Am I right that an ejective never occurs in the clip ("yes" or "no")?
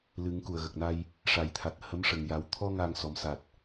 yes